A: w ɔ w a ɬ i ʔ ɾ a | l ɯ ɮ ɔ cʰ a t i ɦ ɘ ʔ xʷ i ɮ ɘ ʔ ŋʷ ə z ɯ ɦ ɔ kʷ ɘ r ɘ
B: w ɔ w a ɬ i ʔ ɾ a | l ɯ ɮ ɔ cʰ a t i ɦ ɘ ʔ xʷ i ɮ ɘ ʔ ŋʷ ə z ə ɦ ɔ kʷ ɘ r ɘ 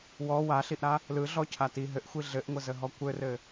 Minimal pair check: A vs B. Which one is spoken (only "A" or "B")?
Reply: B